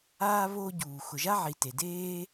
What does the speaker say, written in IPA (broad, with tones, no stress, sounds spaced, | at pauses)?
aː˦ β o˦ ɟ uː˨ x ʊ˨ ʒ a˦ ʕ i˨ t e˨ d eː˦